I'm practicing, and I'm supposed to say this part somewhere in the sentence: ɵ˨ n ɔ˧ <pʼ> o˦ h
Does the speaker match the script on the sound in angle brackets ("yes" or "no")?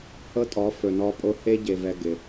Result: yes